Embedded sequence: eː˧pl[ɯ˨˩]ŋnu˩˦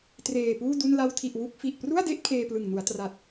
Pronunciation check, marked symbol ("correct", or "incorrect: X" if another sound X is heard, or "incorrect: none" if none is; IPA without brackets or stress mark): correct